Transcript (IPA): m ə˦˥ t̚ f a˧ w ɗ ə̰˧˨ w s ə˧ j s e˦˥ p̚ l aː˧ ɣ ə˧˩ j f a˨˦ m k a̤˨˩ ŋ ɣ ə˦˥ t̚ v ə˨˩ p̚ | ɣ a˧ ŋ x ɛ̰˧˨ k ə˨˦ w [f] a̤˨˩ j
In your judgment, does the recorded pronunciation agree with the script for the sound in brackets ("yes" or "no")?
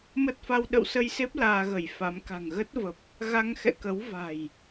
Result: no